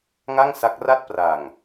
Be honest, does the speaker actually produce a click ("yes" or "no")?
no